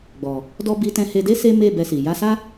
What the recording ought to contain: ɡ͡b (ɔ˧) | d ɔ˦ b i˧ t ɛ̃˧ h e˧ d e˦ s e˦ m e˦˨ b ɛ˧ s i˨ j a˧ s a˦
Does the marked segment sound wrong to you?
yes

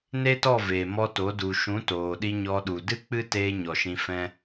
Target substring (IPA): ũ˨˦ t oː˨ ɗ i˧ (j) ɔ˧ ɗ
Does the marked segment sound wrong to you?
yes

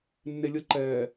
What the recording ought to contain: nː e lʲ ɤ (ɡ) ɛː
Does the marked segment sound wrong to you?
yes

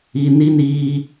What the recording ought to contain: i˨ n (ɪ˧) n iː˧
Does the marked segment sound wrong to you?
yes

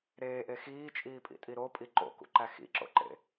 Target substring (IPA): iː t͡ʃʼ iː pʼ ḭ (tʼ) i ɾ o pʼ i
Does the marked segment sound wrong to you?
no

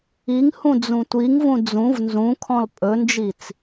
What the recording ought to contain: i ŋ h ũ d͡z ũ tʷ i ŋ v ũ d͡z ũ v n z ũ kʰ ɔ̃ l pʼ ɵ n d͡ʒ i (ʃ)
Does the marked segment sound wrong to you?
yes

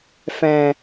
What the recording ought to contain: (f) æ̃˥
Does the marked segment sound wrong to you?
no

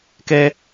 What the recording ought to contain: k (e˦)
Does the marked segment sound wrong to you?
yes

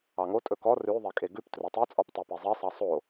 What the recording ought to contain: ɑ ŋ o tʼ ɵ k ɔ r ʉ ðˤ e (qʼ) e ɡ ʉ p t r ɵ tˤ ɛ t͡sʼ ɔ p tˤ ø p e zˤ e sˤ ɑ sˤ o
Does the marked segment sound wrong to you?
yes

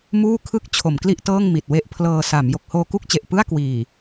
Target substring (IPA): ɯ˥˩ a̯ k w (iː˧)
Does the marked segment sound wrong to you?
yes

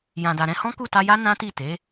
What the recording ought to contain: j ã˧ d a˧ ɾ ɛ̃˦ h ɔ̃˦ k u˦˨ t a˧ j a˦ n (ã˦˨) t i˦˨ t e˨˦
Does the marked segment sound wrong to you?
yes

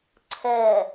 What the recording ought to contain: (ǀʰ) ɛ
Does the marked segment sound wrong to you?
no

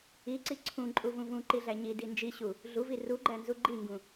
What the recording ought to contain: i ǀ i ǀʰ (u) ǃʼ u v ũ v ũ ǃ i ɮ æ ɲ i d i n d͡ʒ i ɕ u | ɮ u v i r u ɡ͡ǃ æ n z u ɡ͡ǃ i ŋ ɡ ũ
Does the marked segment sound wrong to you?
yes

